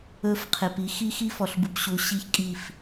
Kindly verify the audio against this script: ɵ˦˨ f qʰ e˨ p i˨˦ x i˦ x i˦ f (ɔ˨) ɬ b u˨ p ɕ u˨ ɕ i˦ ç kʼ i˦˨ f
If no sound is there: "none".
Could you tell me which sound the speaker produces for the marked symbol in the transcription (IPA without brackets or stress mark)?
ɔ˨